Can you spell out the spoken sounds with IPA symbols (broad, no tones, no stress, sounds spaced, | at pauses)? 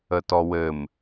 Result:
ə t ɔ w ɘ m